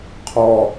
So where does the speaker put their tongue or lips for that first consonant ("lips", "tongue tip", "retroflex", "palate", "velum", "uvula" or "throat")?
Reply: uvula